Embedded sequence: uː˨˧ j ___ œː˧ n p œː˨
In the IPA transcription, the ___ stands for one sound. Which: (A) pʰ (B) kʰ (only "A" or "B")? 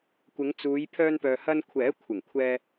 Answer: A